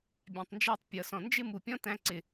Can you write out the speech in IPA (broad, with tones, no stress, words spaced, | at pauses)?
bʲæ̃˨tˤnd͡ʒæ˧tˤ pʲʌ˨ sɔ̃˨nd͡ʒɪ˦ mu˨pʲɔ̃˦tæ̃˧ǀɪ˨